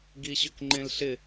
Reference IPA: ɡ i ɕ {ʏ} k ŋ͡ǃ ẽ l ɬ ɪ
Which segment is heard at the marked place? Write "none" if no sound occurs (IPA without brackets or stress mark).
ʏ